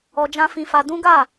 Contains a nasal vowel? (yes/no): yes